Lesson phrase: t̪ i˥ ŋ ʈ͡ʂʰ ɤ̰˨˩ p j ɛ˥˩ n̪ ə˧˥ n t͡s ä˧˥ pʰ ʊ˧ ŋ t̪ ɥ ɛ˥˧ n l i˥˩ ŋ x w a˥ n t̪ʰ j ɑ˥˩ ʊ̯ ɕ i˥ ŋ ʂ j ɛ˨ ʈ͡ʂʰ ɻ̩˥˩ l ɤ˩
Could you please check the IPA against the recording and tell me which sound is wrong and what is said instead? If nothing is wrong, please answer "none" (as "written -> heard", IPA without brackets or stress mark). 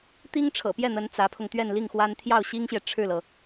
ʂ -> ɕ